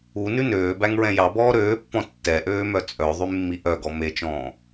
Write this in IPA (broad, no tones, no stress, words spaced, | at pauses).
unʉ nøːbæŋɹɛ̃ jɑbɔː ɾøːpːɔ̃ tːɛʔøːmœ t͡sʼœðˤymːiʔ œɡɔ met͡ʃɔ̃ː